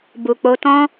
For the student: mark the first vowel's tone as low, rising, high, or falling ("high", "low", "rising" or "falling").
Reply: low